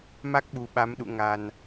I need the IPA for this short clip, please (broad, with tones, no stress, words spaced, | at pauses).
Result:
ma˦˥k̚ɓu˨˩ ɓa˨˦mɗṵ˧˨ ŋa˨˩n